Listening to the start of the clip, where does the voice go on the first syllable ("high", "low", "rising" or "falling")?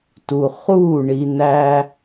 low